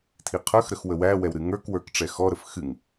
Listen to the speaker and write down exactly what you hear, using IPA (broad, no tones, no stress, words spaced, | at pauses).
tʰiqʰə˞xɾəx wəwæwɛw ɾɨŋə˞kwə˞k ʈ͡ʂɛxɔɾəf xɨŋ